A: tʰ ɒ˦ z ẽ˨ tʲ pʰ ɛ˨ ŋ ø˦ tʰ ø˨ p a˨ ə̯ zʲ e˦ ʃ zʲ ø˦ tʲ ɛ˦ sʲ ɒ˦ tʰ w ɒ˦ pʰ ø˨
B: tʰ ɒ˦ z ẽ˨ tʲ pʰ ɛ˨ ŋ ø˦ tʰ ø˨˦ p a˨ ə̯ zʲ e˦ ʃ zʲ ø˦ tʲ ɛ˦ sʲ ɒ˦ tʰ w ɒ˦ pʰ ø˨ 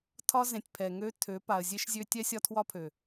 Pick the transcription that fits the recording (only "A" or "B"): B